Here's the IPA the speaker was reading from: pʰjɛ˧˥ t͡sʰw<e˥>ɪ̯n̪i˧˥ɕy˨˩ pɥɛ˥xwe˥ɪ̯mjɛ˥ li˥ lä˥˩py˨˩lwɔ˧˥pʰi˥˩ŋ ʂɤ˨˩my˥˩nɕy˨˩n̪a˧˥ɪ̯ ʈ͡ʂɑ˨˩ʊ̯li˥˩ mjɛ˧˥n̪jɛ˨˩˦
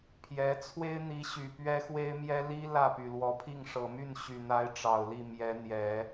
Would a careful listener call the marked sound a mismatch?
no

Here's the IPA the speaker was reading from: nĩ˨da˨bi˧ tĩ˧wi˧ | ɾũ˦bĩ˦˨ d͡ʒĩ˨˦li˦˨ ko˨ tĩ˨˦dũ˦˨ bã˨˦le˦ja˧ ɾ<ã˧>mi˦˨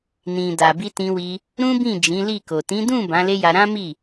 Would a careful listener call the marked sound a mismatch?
yes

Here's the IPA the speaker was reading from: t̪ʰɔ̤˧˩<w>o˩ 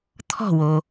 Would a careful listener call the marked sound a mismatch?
no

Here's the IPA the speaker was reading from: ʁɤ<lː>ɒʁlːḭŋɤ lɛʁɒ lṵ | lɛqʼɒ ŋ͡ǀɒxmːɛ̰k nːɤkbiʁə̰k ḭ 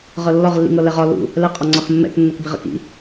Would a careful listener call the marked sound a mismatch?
no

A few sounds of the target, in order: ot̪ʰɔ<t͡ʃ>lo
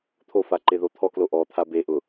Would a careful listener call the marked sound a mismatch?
yes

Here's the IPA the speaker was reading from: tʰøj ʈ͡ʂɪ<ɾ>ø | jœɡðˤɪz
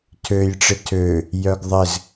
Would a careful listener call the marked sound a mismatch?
yes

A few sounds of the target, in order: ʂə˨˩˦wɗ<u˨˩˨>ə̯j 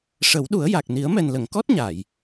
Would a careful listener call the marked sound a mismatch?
yes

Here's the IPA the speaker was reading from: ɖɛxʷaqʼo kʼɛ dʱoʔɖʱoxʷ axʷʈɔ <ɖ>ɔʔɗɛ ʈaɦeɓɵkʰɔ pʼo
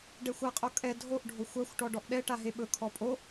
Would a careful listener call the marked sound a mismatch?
no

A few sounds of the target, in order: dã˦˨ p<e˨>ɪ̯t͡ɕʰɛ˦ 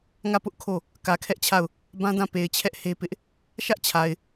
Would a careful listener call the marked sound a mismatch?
no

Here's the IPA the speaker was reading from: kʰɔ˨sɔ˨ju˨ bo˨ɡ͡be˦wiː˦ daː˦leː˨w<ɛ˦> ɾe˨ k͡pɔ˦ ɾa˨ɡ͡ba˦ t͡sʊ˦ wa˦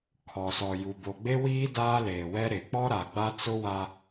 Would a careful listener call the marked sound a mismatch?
no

